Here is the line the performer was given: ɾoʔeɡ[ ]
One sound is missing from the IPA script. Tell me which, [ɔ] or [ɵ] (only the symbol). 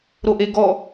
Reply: ɔ